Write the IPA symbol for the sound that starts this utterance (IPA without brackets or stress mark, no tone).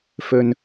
f